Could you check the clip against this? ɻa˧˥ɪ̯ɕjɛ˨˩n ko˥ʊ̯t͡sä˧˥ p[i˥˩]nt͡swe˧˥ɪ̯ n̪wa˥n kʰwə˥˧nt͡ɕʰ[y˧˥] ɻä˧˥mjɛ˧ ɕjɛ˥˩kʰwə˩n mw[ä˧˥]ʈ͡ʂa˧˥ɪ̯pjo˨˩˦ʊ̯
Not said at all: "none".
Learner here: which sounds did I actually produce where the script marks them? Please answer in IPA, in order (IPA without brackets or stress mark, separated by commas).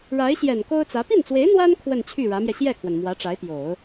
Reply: i˥˩, y˥˩, ä˧˥